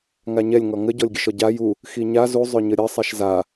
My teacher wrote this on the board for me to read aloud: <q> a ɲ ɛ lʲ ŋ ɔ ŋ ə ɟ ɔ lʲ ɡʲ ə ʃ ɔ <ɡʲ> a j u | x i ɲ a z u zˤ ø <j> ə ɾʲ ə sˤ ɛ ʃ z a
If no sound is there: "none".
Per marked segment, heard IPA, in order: ŋ, ɟ, ɲ

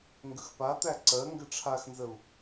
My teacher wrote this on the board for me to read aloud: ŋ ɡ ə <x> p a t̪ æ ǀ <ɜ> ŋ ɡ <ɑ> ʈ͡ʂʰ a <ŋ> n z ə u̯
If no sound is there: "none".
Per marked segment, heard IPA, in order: x, ɜ, ə, x

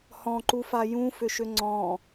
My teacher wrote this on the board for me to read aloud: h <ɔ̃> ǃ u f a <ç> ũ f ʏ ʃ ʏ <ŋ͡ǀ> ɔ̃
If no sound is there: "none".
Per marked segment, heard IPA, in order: ɔ̃, j, ŋ͡ǀ

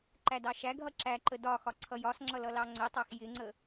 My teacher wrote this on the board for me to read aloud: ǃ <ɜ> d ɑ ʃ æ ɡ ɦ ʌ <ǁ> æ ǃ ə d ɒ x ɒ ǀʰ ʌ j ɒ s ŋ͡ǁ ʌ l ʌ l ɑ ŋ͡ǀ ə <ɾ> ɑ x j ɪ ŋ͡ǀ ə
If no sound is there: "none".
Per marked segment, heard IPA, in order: æ, ǁ, tˤ

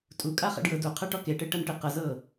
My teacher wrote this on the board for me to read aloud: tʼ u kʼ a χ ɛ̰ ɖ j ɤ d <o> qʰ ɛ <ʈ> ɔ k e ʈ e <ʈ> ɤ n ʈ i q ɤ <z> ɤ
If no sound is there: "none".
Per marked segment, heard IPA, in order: u, ʈ, ʈ, z

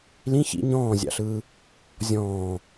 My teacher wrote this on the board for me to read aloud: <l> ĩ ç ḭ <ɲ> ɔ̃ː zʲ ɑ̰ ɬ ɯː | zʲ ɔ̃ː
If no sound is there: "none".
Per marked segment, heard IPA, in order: l, ɲ

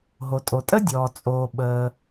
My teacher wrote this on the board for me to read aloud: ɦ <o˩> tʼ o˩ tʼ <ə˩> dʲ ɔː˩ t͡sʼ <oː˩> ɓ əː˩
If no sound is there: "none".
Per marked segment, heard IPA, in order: o˩, ə˥, oː˩

